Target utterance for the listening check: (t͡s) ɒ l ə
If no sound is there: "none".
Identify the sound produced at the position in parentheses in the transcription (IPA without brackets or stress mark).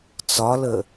t͡s